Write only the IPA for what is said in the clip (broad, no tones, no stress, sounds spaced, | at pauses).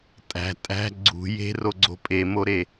tʼ æ̤ tʼ æ̤ ɡ͡ǀ ṳ j e̤ r o ɡ͡ǀ o̤ pʼ e m o ɾ e